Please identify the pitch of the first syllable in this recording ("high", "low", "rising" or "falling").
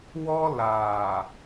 high